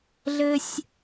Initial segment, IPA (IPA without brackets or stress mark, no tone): ɮ